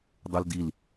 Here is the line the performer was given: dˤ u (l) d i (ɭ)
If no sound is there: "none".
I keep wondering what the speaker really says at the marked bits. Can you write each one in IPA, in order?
l, l

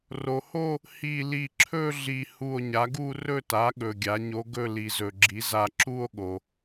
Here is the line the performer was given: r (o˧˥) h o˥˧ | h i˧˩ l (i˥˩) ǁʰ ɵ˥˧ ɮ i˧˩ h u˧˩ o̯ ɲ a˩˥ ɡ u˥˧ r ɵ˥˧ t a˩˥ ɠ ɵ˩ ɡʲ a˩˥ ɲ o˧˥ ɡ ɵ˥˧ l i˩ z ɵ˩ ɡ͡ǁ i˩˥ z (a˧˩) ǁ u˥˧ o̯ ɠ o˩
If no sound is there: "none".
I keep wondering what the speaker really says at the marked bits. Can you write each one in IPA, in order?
o˩, i˧˩, a˧˩

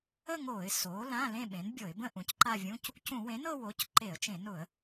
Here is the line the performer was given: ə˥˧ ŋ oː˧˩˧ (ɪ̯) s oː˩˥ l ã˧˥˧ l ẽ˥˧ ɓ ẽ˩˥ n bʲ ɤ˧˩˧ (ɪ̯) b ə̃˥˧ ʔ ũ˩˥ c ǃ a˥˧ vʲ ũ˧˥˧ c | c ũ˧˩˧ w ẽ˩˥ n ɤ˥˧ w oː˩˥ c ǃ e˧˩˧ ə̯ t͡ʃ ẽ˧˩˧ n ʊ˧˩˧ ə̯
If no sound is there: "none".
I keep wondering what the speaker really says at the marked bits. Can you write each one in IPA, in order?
ɪ̯, ɪ̯

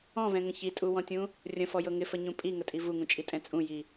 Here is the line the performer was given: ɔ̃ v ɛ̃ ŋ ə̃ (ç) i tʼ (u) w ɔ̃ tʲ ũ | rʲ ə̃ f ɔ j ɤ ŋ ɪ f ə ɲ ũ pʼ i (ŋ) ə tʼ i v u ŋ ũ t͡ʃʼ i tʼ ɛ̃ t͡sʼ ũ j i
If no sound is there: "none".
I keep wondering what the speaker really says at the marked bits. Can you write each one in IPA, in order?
ç, u, ŋ

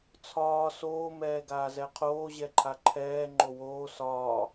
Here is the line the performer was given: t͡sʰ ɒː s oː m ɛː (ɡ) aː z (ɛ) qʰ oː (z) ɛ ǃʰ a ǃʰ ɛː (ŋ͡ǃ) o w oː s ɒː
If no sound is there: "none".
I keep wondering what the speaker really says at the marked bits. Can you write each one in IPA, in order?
ɡ, ɛ, ʑ, ŋ͡ǃ

